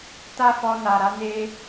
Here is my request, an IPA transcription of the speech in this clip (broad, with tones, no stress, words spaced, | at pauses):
ta˦fɔ˧na˨ɾa˨˦ ne˦